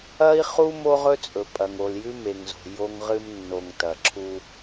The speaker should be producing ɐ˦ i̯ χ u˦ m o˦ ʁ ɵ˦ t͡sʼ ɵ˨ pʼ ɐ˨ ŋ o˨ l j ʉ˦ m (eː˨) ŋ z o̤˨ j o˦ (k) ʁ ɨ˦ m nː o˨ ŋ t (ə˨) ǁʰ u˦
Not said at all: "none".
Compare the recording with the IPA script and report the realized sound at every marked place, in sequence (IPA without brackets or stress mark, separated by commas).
e˨, ŋ, ɐ˨